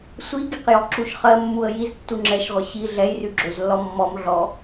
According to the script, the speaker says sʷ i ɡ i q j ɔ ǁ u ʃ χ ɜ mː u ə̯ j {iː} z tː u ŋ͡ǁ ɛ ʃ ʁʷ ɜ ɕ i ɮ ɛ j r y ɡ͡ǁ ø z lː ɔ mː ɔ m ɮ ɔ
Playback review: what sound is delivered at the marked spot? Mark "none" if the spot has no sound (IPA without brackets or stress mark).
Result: i